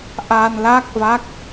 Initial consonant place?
glottal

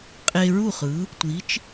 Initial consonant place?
uvular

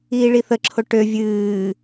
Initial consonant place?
retroflex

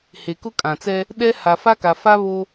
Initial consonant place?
glottal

